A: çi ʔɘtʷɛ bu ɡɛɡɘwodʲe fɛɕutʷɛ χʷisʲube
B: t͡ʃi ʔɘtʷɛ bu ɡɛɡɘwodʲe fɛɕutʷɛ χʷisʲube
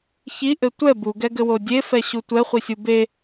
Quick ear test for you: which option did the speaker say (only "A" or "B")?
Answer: A